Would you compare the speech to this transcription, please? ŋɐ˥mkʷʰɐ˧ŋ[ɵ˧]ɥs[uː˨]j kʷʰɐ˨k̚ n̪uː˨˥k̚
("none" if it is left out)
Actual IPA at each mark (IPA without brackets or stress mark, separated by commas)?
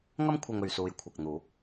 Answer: ɵ˨, uː˨